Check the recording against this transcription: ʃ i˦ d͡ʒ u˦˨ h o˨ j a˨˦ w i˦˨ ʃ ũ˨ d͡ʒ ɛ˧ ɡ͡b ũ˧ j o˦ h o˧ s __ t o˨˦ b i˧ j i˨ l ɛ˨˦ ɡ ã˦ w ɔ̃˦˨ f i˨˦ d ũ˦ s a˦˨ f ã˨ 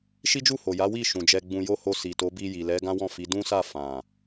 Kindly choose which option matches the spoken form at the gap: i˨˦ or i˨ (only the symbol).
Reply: i˨